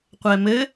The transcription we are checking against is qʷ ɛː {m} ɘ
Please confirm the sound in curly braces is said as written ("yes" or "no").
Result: yes